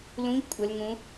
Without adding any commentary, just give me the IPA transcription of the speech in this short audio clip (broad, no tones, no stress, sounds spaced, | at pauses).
l ũ ʎ kʷʼ ə l ŋ ũ